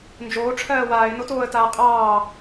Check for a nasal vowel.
absent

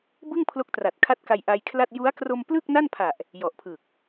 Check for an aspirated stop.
present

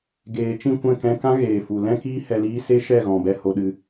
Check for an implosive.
present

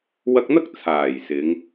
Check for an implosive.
absent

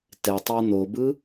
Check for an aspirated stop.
absent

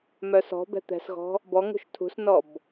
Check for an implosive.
absent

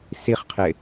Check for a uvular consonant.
present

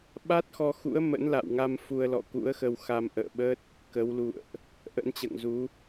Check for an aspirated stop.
absent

